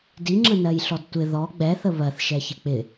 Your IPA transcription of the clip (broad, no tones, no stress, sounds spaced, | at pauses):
d i ŋ͡ǁ ə n ɜ j ɬ ɔ d tʷ ɪ ð ɔ ɡ͡b ɛ θ ə β ɜ θ ʃ ɛ ç ɪ k͡p ɪ